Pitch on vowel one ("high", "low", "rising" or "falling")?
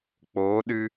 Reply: rising